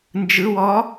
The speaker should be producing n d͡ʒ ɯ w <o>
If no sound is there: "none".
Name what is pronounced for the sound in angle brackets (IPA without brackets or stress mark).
ɔ